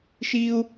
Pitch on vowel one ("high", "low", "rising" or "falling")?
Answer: high